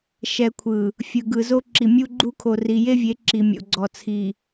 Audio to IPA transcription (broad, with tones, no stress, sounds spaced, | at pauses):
ʃ ɛ˨ kʷʰ ɯ˨ | fʲ ɯ˨ ɡ ɯ˨ z o˦ ǁ i˨ mʲ u˦ ɡ͡ǃ u˦ kʰ o˨ r i˨ j e˦ vʲ e˨˦ ǁ i˨ mʲ o̰˨ ɡ͡ǀ ɔ˨ t͡sʰ i˨